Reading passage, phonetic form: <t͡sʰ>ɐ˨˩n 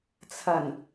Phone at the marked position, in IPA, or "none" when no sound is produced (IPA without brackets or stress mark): t͡sʰ